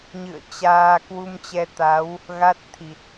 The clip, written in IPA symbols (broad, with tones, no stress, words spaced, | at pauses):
ɲɨ̰˧˨ə̯ t͡ɕaː˧ kwu˧mt͡ɕɛ˧t̪a˨˦w | ɣa˦˥t̚t̪ʰi˨˩t̚